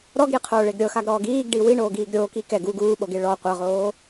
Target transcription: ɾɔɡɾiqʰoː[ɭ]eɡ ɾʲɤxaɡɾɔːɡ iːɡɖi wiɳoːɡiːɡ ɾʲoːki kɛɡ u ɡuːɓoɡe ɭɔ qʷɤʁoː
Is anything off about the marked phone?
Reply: no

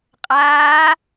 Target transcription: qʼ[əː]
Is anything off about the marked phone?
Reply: yes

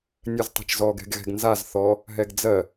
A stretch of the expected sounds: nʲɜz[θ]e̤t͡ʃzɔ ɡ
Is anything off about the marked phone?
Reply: yes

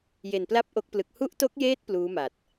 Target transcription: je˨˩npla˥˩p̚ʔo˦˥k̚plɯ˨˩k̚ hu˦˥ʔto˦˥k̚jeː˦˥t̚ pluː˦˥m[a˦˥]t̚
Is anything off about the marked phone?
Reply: yes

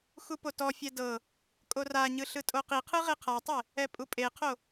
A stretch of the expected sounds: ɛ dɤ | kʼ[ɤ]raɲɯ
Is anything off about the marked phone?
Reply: yes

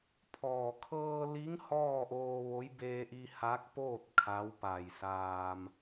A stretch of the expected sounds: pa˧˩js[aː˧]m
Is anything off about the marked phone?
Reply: no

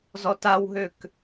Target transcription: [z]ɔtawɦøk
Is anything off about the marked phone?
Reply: no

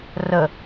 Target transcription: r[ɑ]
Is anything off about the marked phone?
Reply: yes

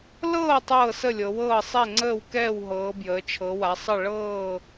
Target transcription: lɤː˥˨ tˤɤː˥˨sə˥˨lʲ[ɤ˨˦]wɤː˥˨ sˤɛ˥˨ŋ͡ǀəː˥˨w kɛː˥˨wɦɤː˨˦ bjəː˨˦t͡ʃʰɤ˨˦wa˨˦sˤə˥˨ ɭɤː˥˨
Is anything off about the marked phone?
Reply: no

